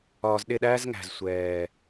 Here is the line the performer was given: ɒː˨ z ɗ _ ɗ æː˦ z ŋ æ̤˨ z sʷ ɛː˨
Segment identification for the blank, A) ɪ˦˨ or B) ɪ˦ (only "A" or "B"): A